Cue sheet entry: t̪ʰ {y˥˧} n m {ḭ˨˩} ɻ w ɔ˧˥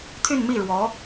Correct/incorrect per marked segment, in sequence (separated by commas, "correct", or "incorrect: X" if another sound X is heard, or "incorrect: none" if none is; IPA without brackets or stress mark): correct, incorrect: i˥˩